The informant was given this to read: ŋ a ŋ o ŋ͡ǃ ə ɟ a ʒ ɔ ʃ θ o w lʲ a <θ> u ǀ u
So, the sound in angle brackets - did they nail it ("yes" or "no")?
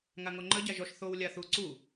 yes